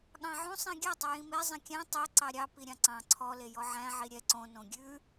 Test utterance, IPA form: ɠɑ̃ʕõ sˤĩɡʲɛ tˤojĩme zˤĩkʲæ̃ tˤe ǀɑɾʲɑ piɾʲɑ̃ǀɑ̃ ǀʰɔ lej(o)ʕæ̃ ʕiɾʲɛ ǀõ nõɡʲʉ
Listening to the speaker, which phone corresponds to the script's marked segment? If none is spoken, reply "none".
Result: ɔ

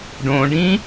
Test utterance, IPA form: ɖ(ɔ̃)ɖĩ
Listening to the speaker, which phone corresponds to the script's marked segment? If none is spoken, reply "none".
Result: õ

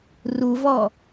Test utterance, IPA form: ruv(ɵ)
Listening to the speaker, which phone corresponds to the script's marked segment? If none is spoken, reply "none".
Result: ɔ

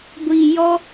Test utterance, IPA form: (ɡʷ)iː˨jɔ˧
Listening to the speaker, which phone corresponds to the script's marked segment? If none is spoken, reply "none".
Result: ɡʷ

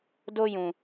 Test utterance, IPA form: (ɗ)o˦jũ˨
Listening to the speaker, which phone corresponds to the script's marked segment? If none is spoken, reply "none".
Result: d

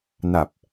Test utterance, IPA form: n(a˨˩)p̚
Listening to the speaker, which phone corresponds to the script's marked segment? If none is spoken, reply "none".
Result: a˨˩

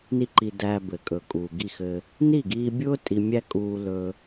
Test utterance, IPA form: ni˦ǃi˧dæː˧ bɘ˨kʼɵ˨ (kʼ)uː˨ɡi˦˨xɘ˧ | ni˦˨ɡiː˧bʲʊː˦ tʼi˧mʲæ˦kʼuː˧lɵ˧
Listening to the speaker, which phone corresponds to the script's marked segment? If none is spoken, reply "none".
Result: kʼ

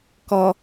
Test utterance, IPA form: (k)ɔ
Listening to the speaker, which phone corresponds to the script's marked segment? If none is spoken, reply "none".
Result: k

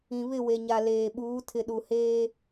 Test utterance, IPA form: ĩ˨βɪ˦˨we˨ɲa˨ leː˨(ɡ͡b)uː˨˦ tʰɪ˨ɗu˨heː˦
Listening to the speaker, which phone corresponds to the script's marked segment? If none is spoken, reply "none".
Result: ɓ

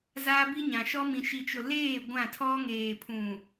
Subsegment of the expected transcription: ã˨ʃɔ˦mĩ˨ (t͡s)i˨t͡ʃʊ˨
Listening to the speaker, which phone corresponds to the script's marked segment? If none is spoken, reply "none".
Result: ʃ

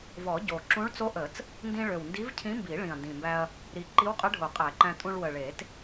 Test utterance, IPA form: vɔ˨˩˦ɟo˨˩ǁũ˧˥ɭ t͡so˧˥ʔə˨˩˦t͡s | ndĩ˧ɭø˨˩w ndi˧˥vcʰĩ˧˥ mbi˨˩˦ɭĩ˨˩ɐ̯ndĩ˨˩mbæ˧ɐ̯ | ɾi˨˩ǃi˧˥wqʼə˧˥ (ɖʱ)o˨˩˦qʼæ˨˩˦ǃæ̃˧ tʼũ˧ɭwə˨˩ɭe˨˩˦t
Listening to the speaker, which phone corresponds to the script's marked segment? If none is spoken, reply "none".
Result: ɖʱ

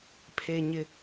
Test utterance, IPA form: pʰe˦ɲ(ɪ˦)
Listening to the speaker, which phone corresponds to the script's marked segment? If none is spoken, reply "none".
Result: ɪ˦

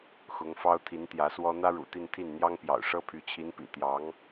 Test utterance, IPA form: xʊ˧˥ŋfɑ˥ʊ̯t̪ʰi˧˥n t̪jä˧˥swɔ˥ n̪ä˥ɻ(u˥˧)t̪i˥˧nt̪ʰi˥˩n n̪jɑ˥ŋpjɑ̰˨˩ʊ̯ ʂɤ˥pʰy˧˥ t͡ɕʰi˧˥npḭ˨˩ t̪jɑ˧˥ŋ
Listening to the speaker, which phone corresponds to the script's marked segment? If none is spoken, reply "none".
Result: ṵ˨˩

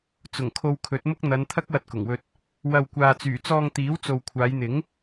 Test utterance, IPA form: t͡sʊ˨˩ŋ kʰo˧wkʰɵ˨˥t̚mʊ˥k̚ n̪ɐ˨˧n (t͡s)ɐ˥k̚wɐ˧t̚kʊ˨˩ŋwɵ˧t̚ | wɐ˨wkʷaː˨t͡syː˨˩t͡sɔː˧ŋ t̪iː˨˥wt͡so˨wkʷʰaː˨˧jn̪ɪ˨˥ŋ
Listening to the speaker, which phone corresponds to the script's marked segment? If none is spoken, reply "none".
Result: t̪ʰ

